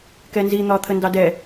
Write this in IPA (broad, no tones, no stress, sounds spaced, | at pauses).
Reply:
k ɛ n z i n̪ ɒː t̪ʰ ə n d ɑ d ɛ